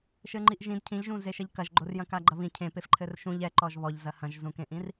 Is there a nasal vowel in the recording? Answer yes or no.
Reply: yes